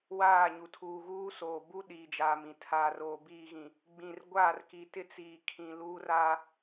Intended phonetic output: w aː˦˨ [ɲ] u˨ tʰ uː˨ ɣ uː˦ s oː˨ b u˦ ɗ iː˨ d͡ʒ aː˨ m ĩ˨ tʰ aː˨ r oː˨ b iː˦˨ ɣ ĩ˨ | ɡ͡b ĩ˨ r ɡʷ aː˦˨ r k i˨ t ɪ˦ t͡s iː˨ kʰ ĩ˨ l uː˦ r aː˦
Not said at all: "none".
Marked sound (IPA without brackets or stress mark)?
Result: ɲ